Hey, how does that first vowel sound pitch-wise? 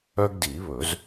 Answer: high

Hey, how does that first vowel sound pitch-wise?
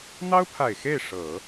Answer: high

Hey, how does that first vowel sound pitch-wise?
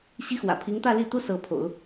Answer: high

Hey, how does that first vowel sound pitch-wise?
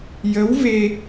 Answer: rising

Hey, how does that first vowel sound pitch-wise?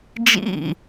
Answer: falling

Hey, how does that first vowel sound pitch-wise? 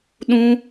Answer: high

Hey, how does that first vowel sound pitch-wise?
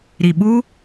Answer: low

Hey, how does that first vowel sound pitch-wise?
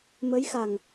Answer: rising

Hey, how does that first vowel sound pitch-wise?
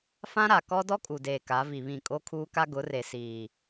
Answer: high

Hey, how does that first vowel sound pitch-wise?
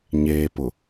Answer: low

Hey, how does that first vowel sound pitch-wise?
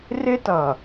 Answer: high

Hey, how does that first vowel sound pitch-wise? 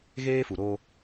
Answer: high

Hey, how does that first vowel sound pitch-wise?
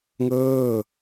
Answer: falling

